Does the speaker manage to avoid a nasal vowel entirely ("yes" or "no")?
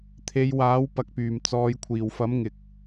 yes